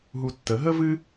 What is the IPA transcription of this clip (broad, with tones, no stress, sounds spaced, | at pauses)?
ɦ u˧ tː ə˨˦ ɦ ə˦ v ɨ˦